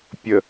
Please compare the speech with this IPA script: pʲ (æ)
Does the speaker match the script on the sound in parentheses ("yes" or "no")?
no